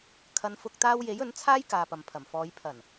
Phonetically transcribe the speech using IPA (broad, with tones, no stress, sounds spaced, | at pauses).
kʰ ɐ˨˧ n f ʊ˧ k̚ t̪ aː˥ w j e˨˥ j ɵ˨˥ n t͡sʰ aː˥ j k aː˧ p ɐ˨ m pʰ ɐ˨˩ m f ɔː˨˧ j pʰ ɐ˨˩ n